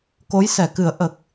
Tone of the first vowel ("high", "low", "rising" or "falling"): rising